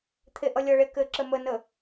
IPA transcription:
t̪ʰ e ʔ ʌ lʲ ʌ ɭ e k ɘ ǁ ə m ə n ə

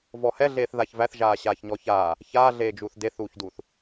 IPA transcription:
v ɔ h ɛ ɮ eː θ ð a ç v æ θ ʒ aː ɕ aː ç ɲ ɔ ç aː | ç aː ɮ eː d͡ʒ uː θ d e θ uː ç d uː θ

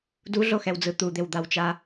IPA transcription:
d u ɮ o x ɛ w d͡z ɯ t̪ u d̪ e w d̪ a w t͡ʃ a

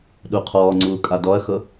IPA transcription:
ɗ u qʰ ɔː ŋ͡ǀ uː kʼ a d ɔ ɐ̯ x ɤ

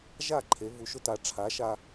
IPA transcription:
ʒ a˥˨ ǃʰ e˨˦ v u˨˦ ʃ ʊ˦ t a˨˦ ʈ͡ʂʰ a˨˦ ʃ a˦

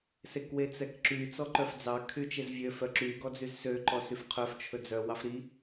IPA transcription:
s e k w e t͡s ɛ k ǁ y t͡s ɔ ǃ œ f d͡z ɑ kʰ y t͡ʃ e z vʲ ø f œ ǁ y ɡ ɔ d͡z y z s ø ǃ ɔ s y f qʰ œ f t͡ʃʰ ɵ d͡z œ w ɑ f ɾ i

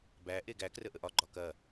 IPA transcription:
b æ ʔ e ɡ æ k r ə ʔ ə ʔ ɒ ɡ͡ǃ ɒ k ɐ

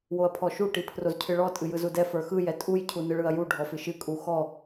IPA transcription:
w o ɐ̯ pʰ ɔ ʃ u ʈ i pʰ r o z cʰ ɨ ɭ ɔ tʼ ɨ j ɯ z u d ɛ f ə˞ x ɯ j ɛ tʼ u j cʰ u n ɯ ɭ ɯ ɐ̯ j u ɖʱ ɔ f ɨ ʃ ɨ kʼ u x ɔ

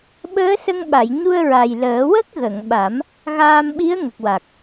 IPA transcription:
ɓ əː˧˥ s ə˧ ŋ ɓ a˨˩˨ j ɲ u˧ ə̯ ɹ a˨˩ j l əː˨˩˦ w ə˦˥ k̚ ɣ ə˨˩˨ ŋ ɓ a˨˩˦ m | ɣ aː˧ m ɓ i˧˥ ə̯ ŋ ə˨˩ k̚ w a˨˩ k̚

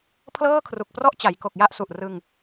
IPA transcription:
pʰ l ɤː˥˩ kʰ r u˨˩ k̚ p r ɔ˥˩ ʔ t͡ɕ a˩˦ j k o˨˩ k̚ j a˥˩ ʔ s u˨˩ ʔ r ɯ˧ ŋ

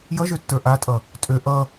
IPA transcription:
j ʌ ʒ ø tː ə˞ ʔ a tʼ ʌ | tʼ ø ʔ ʌ

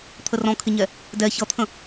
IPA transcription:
t̪ʰ ə r ɔ̃ kʰ ɪ ɲ ɛ | d ɛ ç ʌ t̪ʰ ə̃

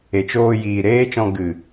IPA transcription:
e˨ t͡ʃ oː˧ j iː˨ ɾ eː˦ t͡ʃ ɔ̃˧ ɡ ɨ˨

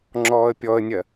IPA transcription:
ŋ͡ǁ ɔː ə̯ pʲ ɔ ə̯ nʲ ɜ

